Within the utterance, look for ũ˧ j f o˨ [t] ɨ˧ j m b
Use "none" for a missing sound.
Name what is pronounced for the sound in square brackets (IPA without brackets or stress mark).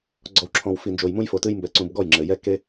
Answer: t